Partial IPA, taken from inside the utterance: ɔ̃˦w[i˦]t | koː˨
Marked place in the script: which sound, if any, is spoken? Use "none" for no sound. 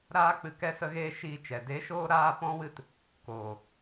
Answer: ɨ˦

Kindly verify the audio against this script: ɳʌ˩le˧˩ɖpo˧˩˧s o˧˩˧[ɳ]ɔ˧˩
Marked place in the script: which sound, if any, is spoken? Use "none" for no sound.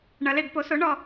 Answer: ɳ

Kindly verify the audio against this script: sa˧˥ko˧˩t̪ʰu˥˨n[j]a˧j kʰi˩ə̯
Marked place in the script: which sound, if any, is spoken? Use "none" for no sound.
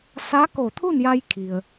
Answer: j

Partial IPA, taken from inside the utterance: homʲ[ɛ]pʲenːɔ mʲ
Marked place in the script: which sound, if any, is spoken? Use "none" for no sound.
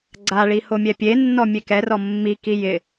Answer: ɛ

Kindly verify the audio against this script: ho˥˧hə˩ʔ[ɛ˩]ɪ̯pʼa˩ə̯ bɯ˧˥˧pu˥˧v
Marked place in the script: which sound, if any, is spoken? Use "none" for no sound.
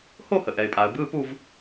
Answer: ɛ˩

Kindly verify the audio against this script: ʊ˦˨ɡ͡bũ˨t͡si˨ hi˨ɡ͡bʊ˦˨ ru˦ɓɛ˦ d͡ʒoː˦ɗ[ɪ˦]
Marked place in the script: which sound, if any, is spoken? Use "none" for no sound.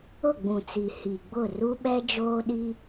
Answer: i˦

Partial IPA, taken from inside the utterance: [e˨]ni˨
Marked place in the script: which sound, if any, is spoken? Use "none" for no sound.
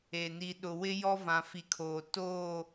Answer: e˨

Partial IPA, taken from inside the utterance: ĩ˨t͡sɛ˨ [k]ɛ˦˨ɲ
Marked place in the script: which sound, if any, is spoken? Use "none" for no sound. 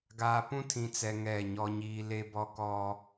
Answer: ŋ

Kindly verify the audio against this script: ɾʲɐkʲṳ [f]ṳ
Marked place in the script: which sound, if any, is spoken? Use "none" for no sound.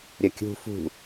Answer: f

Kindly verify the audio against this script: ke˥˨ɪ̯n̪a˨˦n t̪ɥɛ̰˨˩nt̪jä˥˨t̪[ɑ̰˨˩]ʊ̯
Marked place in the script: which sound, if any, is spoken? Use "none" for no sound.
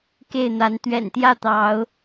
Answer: ɑ˨˦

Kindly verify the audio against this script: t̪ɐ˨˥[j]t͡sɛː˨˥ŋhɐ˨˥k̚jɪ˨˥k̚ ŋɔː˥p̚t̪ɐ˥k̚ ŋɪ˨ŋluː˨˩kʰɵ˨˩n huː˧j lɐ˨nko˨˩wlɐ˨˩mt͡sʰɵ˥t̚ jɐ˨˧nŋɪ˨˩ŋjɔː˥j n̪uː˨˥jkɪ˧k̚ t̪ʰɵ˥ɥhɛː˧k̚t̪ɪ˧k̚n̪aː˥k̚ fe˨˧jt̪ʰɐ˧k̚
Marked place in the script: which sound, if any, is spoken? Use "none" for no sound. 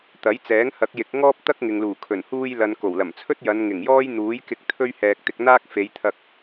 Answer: j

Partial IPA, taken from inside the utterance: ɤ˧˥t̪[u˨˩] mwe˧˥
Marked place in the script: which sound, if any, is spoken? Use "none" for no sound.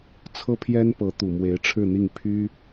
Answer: u˨˩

